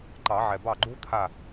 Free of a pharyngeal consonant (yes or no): no